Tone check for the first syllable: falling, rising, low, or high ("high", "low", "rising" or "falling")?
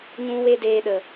high